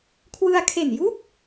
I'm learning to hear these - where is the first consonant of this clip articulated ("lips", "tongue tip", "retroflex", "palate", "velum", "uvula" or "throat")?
velum